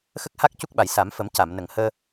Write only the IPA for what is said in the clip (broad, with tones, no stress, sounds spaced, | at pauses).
x ə˦˥ k̚ h a˦˥ k̚ c u˦˥ k̚ ɓ a˨˩ j s a˨˩˦ m f ə˨˩˦ m c a˨˩˨ m n ə˨˩ ŋ h əː˧